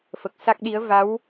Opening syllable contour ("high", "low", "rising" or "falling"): low